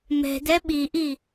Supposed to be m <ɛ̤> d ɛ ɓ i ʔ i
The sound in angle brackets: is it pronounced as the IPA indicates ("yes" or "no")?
yes